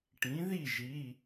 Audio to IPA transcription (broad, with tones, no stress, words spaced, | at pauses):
ʈĩ˩˥ði˥˩ʒi˩˧˩